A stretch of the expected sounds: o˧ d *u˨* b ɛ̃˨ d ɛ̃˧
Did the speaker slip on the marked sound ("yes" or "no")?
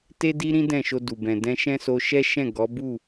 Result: no